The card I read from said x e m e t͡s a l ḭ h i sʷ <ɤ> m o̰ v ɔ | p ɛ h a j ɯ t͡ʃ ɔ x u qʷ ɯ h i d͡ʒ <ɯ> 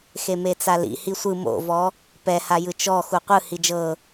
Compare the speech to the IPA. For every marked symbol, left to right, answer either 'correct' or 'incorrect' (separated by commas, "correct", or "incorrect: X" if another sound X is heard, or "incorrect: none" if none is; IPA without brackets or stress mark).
incorrect: ɯ, incorrect: ɤ